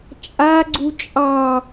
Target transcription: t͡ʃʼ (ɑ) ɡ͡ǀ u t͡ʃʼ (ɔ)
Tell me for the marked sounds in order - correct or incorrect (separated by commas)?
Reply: incorrect, incorrect